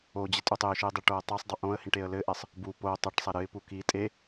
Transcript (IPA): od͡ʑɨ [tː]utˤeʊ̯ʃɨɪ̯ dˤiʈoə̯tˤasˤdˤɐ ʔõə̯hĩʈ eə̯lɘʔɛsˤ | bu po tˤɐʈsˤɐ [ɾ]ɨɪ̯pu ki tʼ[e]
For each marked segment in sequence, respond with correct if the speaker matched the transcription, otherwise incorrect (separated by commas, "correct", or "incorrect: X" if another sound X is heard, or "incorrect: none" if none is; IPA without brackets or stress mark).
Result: incorrect: tʼ, correct, correct